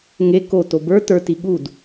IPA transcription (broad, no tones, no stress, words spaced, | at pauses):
ŋe koto bə˞ tə˞ti ɠud